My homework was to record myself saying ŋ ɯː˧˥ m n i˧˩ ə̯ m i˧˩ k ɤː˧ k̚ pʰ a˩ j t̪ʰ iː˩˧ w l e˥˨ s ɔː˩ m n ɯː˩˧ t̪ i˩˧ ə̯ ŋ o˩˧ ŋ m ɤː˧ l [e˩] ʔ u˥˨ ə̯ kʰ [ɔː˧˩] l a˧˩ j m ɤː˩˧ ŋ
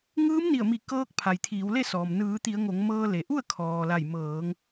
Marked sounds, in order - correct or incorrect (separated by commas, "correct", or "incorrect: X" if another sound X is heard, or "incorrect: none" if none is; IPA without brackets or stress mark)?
correct, incorrect: ɔː˩